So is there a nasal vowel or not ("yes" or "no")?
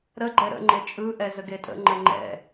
no